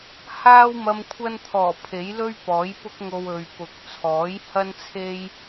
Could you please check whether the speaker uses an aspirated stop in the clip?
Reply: yes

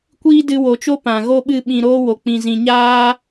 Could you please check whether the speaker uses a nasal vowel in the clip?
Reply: yes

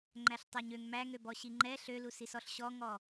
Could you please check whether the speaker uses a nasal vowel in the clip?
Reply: no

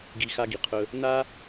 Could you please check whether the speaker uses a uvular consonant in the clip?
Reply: yes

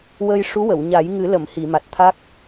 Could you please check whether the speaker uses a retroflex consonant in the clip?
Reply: yes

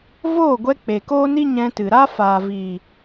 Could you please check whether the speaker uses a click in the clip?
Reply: no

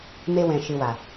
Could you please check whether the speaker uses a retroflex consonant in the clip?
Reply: no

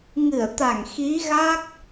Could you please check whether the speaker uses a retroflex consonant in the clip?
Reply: no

